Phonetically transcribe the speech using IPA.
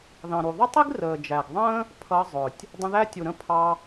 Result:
ð ɑ̃˨ ɾ u˨ ðˤ ʊ˦ tˤ i˦ ɡ r əː˨ d͡ʒ æ˨ ɡ ðˤ ə̃ː˦ | pʰ ʌ˧ zˤ ʊ˨ tʲ | dˤ ə̃˧ ð æ˦ tʲ u˨ ɾ ə̃˦ pʰ ɑ˧

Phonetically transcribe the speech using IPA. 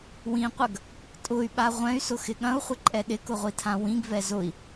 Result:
w ĩ qʷ ɐ ɡ | tʼ ʊ y̯ ɓ a ʁʷ ɛ̃ y̯ s ʊ x ɪ ɠ ɐ̃ u̯ χʷ ɪ ǃʼ ɛ ɗ ɪ k ʊ ʁʷ i tʰ ã w ĩ ɡ v ɛ z ʊ i̯

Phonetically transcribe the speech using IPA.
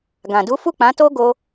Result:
ɡ ã˨ d u˨˦ f u˦˨ k͡p ã˨˦ t o˦ ɡ o˦

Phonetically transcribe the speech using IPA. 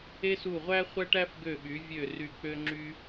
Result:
e˥ s u˦˨ ʁʷ æ˥ χʷ æ˥ ʈ æ˥ f ɡ ø˦˨ ɓ y˨˦ vʲ ø˦˨ r y˦˨ k͡p ø˥ ŋ͡ǁ y˥

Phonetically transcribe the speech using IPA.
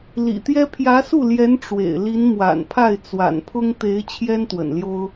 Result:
l ḭ˨˩ t̪ j ɛ˥ pʰ j ä˧˥ s u˥˩ l j ɛ˧˥ n ʈ͡ʂ w ḛ˨˩ ɪ̯ l i˧˥ n m w a̰˨˩ n pʰ a˥˩ ɪ̯ t͡s w a̰˨˩ n pʰ ʊ˥ ŋ t̪ e˧˥ ɪ̯ t͡ɕʰ j ɛ˥ n t̪ w ə̰˨˩ n l j o˥ ʊ̯

